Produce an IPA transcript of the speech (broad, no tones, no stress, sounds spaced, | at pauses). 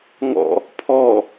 ŋ ɔ̰ | pʰ ɔ